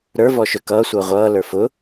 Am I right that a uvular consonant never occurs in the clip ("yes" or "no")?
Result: no